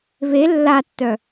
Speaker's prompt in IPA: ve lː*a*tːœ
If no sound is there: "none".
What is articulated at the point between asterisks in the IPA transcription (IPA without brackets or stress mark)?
a